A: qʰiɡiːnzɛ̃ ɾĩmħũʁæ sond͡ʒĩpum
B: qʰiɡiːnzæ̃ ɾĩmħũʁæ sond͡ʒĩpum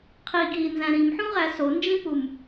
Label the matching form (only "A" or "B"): B